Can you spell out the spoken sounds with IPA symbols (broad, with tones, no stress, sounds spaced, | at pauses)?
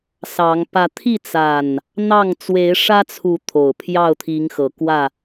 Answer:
s ɑ˨˦ ŋ p ä˨˦ t̪ʰ i˥˨ t͡s a˨˩ n | n̪ ɑ˥˨ ŋ t͡s w e˨˦ ɪ̯ ʂ ä˦ t͡sʰ u˨˦ t̪ʰ o˨˩ ʊ̯ pʰ j ɑ˥˨ ʊ̯ t̪ʰ i˨˦ ŋ x ɤ˨˩ k w ä˥˨